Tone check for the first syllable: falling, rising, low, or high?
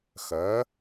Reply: rising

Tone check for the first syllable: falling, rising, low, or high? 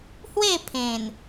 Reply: falling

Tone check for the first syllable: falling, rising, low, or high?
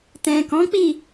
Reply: low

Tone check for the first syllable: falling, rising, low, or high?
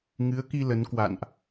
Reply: rising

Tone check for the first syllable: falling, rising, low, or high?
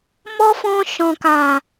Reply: high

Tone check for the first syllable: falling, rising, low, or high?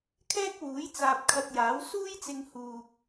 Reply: high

